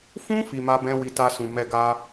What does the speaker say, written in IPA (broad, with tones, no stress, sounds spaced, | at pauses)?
f ũ˦ f i˧ m a˦ b ɛ̃˦ w i˧ t a˧ s ũ˨ m ɛ˧ ɡ a˦